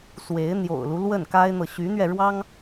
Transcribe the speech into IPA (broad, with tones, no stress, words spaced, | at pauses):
swe˧˥ɪ̯ n̪jo̰˨˩ʊ̯lu˦ lwə˥˩nka˥ɪ̯n̪ɤ˨ ɕy˧˥n̪ɥɛ˧ɻwɑ˥ŋ